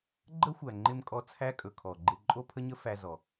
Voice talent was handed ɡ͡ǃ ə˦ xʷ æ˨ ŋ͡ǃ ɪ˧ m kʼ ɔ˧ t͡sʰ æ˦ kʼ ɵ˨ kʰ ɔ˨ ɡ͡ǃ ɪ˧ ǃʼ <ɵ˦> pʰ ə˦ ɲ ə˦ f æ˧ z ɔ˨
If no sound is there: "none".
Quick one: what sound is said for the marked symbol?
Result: o˦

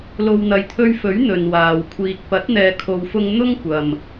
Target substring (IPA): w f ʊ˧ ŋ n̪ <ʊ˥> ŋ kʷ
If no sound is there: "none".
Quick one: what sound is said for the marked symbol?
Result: ʊ˥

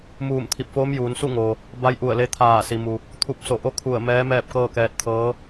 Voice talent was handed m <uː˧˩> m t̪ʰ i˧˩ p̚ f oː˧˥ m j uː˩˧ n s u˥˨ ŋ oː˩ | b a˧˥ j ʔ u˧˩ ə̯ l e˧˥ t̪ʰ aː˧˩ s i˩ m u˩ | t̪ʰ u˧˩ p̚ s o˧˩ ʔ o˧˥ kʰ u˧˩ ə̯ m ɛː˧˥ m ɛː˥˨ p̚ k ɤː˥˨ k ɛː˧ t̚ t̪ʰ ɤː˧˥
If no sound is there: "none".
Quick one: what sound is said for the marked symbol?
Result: uː˧˩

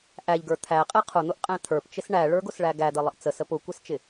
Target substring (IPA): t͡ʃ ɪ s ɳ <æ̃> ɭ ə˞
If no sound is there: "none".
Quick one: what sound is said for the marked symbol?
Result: æ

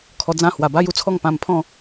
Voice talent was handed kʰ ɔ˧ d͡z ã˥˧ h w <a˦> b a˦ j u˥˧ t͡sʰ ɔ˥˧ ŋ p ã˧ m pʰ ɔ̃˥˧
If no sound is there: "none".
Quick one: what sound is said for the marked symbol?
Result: a˨˩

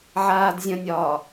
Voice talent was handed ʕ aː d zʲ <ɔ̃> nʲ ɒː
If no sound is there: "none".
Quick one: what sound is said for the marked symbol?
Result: ə̃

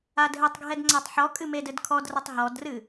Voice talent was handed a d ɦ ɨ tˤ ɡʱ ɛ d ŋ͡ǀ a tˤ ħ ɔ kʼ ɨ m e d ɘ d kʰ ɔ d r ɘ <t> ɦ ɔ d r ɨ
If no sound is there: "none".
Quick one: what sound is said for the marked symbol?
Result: tˤ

